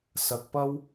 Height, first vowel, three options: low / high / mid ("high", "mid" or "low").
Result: low